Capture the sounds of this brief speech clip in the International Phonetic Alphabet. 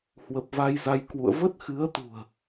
h w ə˨˩ p̚ v a˧ j z a˧ j k w ṵ˧˨ ə̯ v ə˦˥ t̚ x ɨ˨˦ ə̯ t̪ ṳ˨˩ ə̯

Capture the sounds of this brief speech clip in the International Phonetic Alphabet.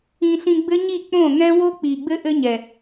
ĩ˧ ɬ ĩ˧ ɡ͡b ɘ˦ ɲ i˦˨ k͡p õ˦˨ ŋ ɛ̃˦ w o˦ k͡p i˨ ɡ͡b ɘ˦ ʔ ɘ˦ ɲ ɛ˨

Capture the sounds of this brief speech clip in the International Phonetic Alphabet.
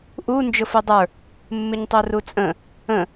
ʔ u n d͡ʒ ʊ f u dˤ ə˞ | mː ɪ ɲ tˤ u r u t͡sʼ ə̃ | ə̃

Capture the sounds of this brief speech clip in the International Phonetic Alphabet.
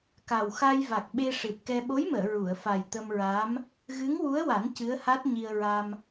k a˨˩ w x a˧ j v a˨˩ k̚ ɓ e˧ ʂ ɨ˨˩ t̚ k ɛ˧ ɓ o˧˥ j m əː˨˩˨ ɹ u˨˩˨ ə̯ f a˨˩ j t̪ ə˧ m ɹ a˧˥ m | ɣ ɨ˧˥ ŋ w u˧˥ ə̯ w a˨˩˦ n c ɨ˧˥ ə̯ h a˦˥ t̚ ɲ i˧ ə̯ ɹ a˧ m

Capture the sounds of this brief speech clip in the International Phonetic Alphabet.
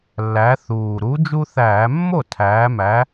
lː æ˨˥ θ uː˨˩ ɾ u˨˥ d͡ʒ u˦ θ æː˧˩˧ mː o˥˩ tʰ æː˩˧ m æ˩˧

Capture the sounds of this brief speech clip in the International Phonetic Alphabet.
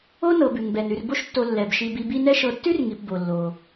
o˥ n ɤ˨ b ʉ˩ ŋ b ɛ˩ n ʉ˨ r b o˦ ʃ tː o˨ lː ɛ˩ b ʃ i˨ b i˨ b i˦ n ɛ˥ ʃ ɤ˨ tː ʉ˥ r ŋ i˩ p b o˩ lː o˩

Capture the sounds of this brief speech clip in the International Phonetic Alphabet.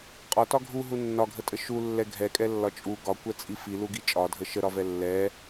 qʼ ɒ t ɒ ɡʱ u ɦ u nː ɒ ɡʱ ə tʼ ə ʃ u lː ɛ ɡʱ ɛ kʼ ɛ lː ɒ t͡ʃʼ u ɡ ɒ kʷ ɛ t͡sʼ i f i l u ɡ i t͡ʃʼ ɒ dʱ ə ʃ ə ɾ ɒ v ɛ lː ɛ

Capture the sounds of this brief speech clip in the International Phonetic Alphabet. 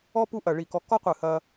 ɔ˥ p u˥ ʔ ɐ˧˩ ɭ i˧˩ k ɔ˧ k ɔ˥ qʷ ɨ˧˩ h ɐ˧

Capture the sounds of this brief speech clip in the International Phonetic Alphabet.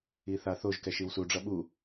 i θ a θ o ʒ k ɛ ʃ i w s u ɖ͡ʐ ʌ ɓ u

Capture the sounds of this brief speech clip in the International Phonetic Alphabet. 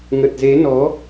ŋ ə˨˩ t̚ z e˨˦ n ɔ˨˦

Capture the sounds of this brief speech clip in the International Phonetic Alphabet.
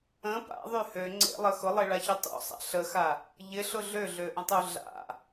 ə̃ p a̰ ðˤ y h ø ŋ͡ǀ ḛ lˠ ə x ʊ lˠ e ɭ a ç u tˤ ṵ sˤ a̰ ɬ ə x a | ʎ ɪ ɬ ʊ ɮ ø ɮ ø ʔ ə̃ tˤ u ɮ a̰

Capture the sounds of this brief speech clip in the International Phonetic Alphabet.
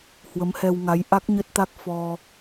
h w ə˨˦ m h ɛ˧ w ŋ a˨˦ j ʔ a˦˥ k̚ ɲ ə˦˥ t̚ t̪ a˦˥ k̚ f ɔ˧

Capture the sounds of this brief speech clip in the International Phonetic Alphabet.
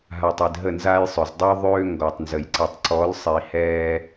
ɦ a˨ tˤ i˨ d ɦ ə˦˨ n z aː˦ j sˤ ø˨ z dˤ ø˦ ðˤ øː˦ ŋ ɡ ɔ˨ tˤ n z ə˨ j ǀ i˨ tˤ ǀ ɔ˨˦ l sˤ i˨ h ɛː˦

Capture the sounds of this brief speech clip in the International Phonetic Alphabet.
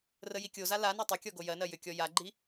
r ə j i kʲ o z a l a n a tˤ ʏ kʲ ɔ ɡ o j ɜ n ɜ j ʏ kʲ ɔ j a ɡ͡ǃ i

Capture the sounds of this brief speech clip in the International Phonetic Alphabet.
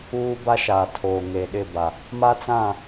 uː˦ b a˦ ʃ aː˨ tʰ oː˨ ŋ e˨ ɗ ɪ˦˨ b a˨ | m a˦ t͡s ã˦˨

